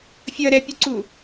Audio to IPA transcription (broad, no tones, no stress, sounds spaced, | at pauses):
fʲ ʌ ɾ ɛ pʲ u ǀ u